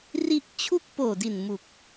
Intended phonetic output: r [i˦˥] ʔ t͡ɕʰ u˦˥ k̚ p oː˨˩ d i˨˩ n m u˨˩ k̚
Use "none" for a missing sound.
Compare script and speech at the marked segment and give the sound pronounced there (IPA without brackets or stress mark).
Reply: i˦˥